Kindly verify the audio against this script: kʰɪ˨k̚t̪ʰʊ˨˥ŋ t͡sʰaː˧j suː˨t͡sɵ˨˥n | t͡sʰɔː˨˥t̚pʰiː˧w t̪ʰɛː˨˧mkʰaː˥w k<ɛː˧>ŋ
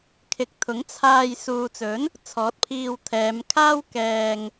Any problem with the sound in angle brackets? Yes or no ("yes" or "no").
no